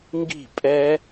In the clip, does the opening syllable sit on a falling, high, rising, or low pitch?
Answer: falling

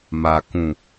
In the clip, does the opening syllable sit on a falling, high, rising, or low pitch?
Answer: low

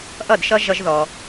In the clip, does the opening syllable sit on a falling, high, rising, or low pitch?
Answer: falling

